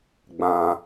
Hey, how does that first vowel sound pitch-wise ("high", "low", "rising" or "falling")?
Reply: low